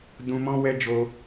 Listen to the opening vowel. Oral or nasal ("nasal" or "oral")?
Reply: nasal